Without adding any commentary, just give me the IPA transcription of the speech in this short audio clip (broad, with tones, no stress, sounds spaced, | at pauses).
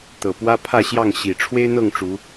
t̪ ɤ˨˩ p w ä˦ pʰ ä˥˨ ɕ j ɑ˥˨ ŋ ɕ i˨˩ ʈ͡ʂʰ w e˦ ɪ̯ n̪ ɤ˥˨ ŋ ʈ͡ʂ u˨˦